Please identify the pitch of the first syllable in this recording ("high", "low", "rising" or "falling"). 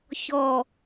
low